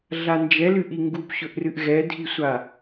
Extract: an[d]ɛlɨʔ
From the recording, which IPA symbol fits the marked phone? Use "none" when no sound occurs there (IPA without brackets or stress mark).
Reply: d͡ʒ